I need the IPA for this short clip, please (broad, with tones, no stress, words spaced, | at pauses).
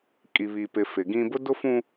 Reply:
kʼi˨βi˨pɪ˨ fɪ˨ɡĩ˦ bʊ˦dʊ˦fũ˦